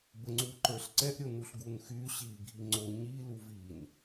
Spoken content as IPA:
b ə ŋ͡ǀ u ǃ ə˞ ɬ ǀ ɛ ʔ ɾʲ o n u ɬ ɡ u n x y ɕ i ɡʱ i ŋ͡ǀ o ɲ i l u v i n

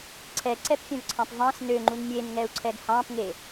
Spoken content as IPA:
ǀʰ ɛ ǀ ɛ p fʲ œ̃ v ǀʰ ɑ̃ p v ɑ̃ s n ø ŋ͡ǃ u n mʲ e n ŋ ɛ u̯ ǀʰ ɛ ɡ h ɑ̃ p ŋ e

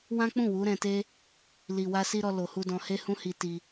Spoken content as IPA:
w ã˦ k͡p ũ˦˨ w u˨˦ ɾ ɛ̃˧ t e˦ | l i˨ w a˧ s i˧ ɾ ɔ˧ l o˨ h u˧ d ɔ̃˧ h e˦ h ũ˦ h i˧ t i˧

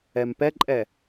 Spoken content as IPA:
ɛ m p ɛ ǃʼ ɛ

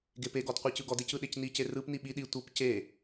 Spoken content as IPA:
ɡ e p e ɡ ɔ d qʷ i c ɯ ɡ ɔ d e c ɯ ɗ e c n i c e r ɯ p n i ɓ i ɗ i tʷ ɤ p c e

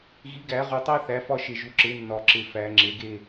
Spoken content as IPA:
ɣ i˩˥ ɡ æ˨˩˦ ʁ u˨ tˤ æ˦ θ æ˩˥ f ɒ˦ ʃ e˨ ʒ u˩˥ ǁ e˩˥ nː ɒ˨˩˦ ǁ e˨ f æ˨˩˦ ŋ͡ǁ e˩˥ ɡ e˥˨

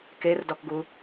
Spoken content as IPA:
k e r d ɔ k ɡ u

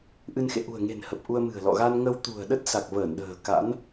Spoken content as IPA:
ʔ ɨ˧ n x ḛ˧˨ ʔ ṳ˨˩ ə̯ ŋ e̤˨˩ n h ə˨˩ p̚ ʔ u˧ ə̯ m ɨ̤˨˩ ə̯ l ɔ̰˧˨ ɣ a˧ n ŋ ə˧ w t̪ ṳ˨˩ ə̯ ɗ ə˦˥ t̚ s a˨˩ k̚ v əː˧˩ n ɗ ə̤ː˨˩ k a̰˧˥ n

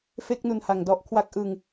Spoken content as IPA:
f e˥˩ k̚ n u˧ n h a˨˩ ŋ d ɔ˦˥ ʔ kʰ w a˥˩ k̚ ʔ ɯ˧ ŋ

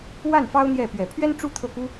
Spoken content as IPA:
w a˥˩ n f ɑ˥ ʊ̯ n̪ j ɛ˥˩ p ɥ ɛ˨˩ pʰ ɥ ɛ˥ n ʈ͡ʂ u˥ t̪ʰ ɤ˥˩ k u˥

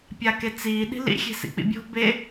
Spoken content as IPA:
pʲ a k e t͡s iː ɗ i̤ l ḭ xʲ e̤ s ḭ k͡p ḭ bʲ o̤ b e

